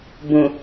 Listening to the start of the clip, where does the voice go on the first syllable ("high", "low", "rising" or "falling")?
low